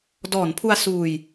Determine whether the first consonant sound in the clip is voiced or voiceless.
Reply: voiced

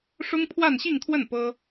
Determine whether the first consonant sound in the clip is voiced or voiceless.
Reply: voiceless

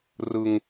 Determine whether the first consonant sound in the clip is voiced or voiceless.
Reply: voiced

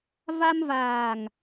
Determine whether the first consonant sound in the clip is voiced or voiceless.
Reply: voiced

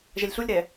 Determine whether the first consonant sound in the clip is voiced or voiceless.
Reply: voiced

